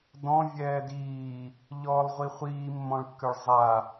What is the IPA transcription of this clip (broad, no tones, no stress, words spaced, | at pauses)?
dɔ̃ vʲɛːdiː | ʎɔːlˠʁʷiχʷiː mːɔ̃ɭkːøɭzˤa